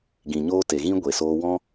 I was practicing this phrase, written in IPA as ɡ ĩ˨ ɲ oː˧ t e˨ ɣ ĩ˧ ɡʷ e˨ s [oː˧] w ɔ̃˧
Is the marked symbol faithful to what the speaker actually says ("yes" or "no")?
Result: yes